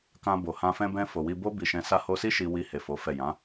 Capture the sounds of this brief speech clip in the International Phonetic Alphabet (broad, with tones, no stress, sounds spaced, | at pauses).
k ã˧ b o˨ h ã˧ f ɛ̃˧ b ɛ̃˧ f o˨ w i˧ b o˦ b i˧ ʃ ɛ̃˧ s a˧ h o˧ s i˦ ʃ i˧ w i˧ h e˨ f o˨˦ f ɛ˦˨ j ã˨˦